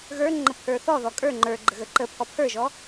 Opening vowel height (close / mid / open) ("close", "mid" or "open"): mid